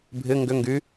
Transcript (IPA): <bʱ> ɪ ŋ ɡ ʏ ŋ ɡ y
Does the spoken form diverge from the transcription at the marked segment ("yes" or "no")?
no